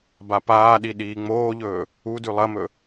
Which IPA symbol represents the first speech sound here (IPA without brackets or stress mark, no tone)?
b